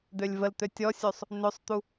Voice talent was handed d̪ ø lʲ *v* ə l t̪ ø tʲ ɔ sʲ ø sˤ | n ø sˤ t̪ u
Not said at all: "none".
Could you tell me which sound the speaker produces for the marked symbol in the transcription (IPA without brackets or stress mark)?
v